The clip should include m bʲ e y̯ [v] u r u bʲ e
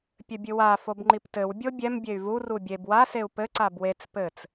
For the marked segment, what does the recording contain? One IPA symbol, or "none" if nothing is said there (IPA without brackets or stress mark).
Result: v